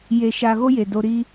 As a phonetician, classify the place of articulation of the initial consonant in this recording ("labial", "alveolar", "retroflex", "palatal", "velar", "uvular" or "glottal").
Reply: palatal